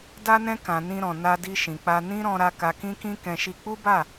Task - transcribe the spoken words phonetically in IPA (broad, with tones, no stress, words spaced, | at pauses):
da˧nɛ̃˧kã˨ nĩ˧ɾɔ̃˨ na˧di˧ʃĩ˨k͡pa˧ nĩ˦ɾɔ̃˧ɾa˧ ka˧kĩ˦kĩ˦ kɛ̃˧ʃi˧ k͡pu˦ba˦˨